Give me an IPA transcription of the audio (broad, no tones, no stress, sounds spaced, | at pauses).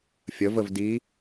fʲ ə v ə v d i